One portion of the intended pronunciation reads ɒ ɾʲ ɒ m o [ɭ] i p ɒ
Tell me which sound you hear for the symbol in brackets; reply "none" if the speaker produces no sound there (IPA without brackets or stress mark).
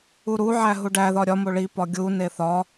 ɭ